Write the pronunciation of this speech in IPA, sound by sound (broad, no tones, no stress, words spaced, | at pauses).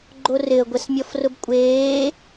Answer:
ɡ͡ǃorɪə̯ ɡʷɛsmʲɔfrʊbkʷʼeː